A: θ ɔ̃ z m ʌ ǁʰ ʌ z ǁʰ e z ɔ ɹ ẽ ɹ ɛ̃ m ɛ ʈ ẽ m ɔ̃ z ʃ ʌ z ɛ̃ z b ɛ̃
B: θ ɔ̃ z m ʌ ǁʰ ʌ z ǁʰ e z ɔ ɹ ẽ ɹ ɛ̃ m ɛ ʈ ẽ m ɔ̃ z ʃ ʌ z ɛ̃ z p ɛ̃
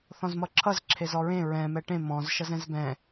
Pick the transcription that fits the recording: A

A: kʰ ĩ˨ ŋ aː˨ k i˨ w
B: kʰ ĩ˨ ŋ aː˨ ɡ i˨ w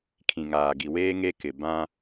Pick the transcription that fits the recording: B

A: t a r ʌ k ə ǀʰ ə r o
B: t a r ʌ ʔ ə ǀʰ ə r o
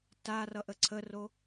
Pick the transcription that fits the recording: B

